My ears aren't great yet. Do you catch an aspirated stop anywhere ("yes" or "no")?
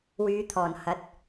yes